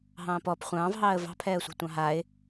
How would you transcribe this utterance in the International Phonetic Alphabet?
ɦ ɑ̃ː p ɔ p χʷ ɑ̃ː v ɦ ɑː ə̯ v ɑ̤ pʰ ɛː ə̯ sʷ a̤ tʷ ɑ̃ ɦ a ɪ̯

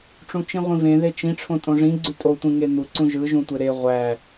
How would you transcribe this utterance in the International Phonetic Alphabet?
ʈ͡ʂ ũ t͡ʃ ĩ ʁʷ ĩ v ẽ ð e t͡ʃ ĩ ʈ͡ʂʰ õ tʼ õ ʐ ĩ ɡ͡ǀ y tʼ o tʷ ĩ ŋ e n̪ u ǀ ũ ʒ ɯ ʒ ũ tʷ e ɾ e ʁʷ æ

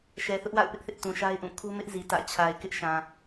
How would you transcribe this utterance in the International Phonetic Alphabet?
ʃ ɛ˨ θ ʊ˦ ʔ w a̰˦˨ ʊ̯ p ɪ˦ ʔ θ ɪ˦ ʔ t ũ˨ ʃ a˦ ɪ̯ ʔ ũ˦˨ kʰ u˦ m ɪ˦ ʔ z i˨ t ä̰˦˨ t͡ɕʰ a˨ ɪ̯ k ɪ˦ ʔ ʃ ã˨

